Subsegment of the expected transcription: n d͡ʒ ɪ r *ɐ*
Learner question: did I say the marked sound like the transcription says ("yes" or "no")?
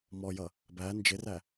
no